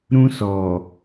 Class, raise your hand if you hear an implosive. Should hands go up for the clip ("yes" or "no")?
no